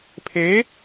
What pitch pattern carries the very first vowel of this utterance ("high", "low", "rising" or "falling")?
rising